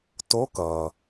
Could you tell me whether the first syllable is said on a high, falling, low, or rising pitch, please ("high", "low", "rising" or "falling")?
rising